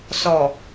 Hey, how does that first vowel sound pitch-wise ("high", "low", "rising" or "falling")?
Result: low